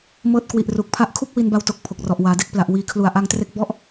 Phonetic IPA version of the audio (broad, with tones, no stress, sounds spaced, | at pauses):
m ɤː˦˥ t̚ k w i˨˩ ʔ r u˨˩ k̚ pʰ a˥˩ ʔ kʰ u˥˩ k̚ w i˧ n b a˧ w t o˨˩ k̚ pʰ o˨˩ k̚ r ɔ˨˩ ʔ w aː˩˦ d e˦˥ k̚ p l a˨˩ ʔ w iː˨˩ kʰ l u˨˩ a̯ ʔ a˧ ŋ t r e˦˥ k̚ b ɔ˦˥ ʔ